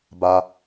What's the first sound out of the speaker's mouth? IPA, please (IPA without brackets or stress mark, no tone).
b